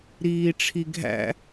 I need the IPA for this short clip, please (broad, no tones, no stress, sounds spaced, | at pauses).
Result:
ɾ iː ʈ͡ʂʰ i ɡʱ æ̰